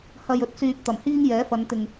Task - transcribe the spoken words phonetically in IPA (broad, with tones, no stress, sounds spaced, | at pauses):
h ɐ˨ j ɵ˨˥ t̚ s yː˨ p̚ t̪ ɐ˨˩ m h iː˥ ŋ j ɛː˨˥ f ɐ˨˧ n t̪ ɪ˨ ŋ